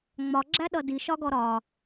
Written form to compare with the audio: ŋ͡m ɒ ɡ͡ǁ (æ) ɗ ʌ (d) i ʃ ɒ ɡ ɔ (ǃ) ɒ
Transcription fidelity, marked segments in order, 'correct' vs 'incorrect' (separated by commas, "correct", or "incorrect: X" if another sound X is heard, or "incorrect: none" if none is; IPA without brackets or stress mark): correct, correct, incorrect: ɾ